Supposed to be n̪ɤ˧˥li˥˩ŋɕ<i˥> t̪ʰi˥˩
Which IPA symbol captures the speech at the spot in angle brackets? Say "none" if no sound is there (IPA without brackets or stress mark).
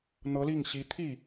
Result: i˧˥